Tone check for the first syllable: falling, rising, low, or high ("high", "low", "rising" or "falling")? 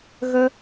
high